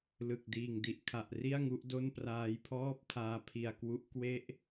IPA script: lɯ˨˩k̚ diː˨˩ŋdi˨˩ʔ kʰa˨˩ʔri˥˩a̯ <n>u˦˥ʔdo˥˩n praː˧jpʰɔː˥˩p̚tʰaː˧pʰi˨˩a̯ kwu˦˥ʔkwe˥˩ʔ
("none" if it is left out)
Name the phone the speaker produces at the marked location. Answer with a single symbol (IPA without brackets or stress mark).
ŋ